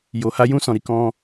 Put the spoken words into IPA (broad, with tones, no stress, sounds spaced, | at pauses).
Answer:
j o˧ h a˦ j ũ˦ s ɔ̃˧ ɾ i˧ k ɔ̃˦